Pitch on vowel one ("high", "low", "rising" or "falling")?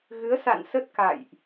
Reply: rising